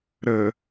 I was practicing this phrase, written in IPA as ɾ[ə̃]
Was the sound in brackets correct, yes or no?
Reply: no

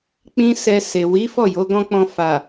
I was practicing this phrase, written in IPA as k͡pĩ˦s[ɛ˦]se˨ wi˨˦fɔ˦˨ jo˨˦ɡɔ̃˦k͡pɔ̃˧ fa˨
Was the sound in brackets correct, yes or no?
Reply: no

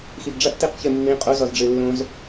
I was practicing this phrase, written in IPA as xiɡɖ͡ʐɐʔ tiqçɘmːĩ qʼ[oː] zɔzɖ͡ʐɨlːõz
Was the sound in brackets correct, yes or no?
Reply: no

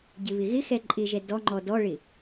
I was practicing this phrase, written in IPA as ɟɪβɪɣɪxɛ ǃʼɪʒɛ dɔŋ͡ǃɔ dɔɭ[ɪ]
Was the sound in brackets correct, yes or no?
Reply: yes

